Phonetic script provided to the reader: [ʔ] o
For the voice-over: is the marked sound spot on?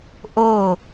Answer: yes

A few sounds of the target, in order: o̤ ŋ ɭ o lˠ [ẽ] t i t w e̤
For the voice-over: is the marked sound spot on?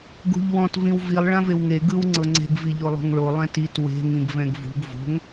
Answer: no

